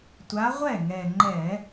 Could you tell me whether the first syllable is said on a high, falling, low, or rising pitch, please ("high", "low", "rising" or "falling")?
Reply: rising